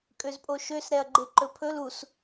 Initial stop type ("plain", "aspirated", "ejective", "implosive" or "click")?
ejective